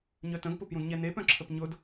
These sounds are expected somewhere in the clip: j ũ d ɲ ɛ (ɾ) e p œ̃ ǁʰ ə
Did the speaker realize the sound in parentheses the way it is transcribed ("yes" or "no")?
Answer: no